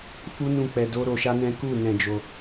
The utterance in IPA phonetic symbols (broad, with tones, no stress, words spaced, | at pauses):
fu˦nũ˦˨ k͡pɛ˧ do˦ ɾo˧ʃa˦nɛ̃˦ ku˦˨ nɛ̃˧d͡ʒo˧